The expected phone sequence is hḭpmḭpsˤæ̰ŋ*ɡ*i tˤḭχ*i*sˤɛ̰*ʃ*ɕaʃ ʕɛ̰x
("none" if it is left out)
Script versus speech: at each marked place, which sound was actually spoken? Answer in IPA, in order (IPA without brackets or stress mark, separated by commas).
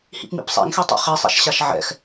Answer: x, i, ʃ